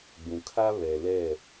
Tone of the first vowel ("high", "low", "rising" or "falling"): low